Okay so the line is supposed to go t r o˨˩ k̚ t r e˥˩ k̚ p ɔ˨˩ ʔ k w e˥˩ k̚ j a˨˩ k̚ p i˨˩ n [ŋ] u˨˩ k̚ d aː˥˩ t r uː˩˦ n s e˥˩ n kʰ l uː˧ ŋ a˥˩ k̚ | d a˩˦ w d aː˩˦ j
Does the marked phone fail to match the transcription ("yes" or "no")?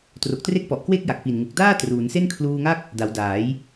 no